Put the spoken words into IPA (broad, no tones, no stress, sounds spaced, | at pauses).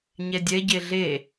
ɲ ɛ dʲ ɛ ɟ e ɮ e